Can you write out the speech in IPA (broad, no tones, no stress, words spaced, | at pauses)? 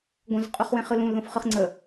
ɡʷə̃zqʼuχwẽχɯ lũlðõfχɯχ ŋ͡ǀə